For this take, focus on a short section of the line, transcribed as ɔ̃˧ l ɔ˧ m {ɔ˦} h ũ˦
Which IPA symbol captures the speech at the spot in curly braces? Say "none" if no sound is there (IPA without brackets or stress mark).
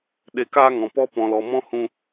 ɔ̃˦